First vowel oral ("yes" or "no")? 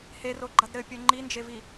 yes